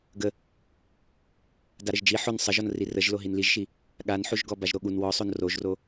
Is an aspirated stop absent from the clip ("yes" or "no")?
yes